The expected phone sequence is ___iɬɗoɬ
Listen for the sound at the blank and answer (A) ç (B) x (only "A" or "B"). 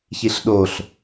A